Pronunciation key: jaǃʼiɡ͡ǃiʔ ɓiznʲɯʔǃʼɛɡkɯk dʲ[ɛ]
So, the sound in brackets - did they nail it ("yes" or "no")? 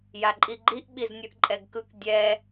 yes